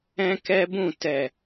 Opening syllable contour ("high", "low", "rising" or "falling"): high